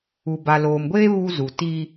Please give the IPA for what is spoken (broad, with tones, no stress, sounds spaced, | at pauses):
u˨ b a˨ l oː˨ m ɡʷ eː˦ β u˦ z u˨ t i˦